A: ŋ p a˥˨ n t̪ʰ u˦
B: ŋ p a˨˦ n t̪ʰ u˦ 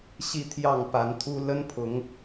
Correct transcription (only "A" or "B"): B